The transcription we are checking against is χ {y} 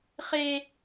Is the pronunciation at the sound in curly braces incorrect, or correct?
incorrect